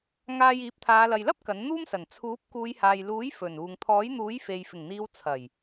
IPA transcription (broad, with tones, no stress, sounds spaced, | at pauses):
ŋ aː˧ j iː˨˥ p̚ t̪ʰ aː˨˧ l ɐ˨ j l ɐ˥ p̚ k ɐ˨˥ n n̪ uː˥ m s ɐ˨˩ n t͡sʰ uː˨˥ p̚ k uː˨˧ j h aː˨ j l uː˨˥ j f ɵ˨˩ n uː˨ ŋ t̪ʰ ɔː˨˥ j n̪ uː˨˥ j f e˨ j f ɪ˨˩ ŋ n̪ iː˨˧ w t͡sʰ ɐ˨˩ j